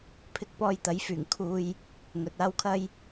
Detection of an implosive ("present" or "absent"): absent